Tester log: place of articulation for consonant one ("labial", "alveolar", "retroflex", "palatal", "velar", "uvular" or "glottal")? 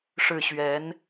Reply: retroflex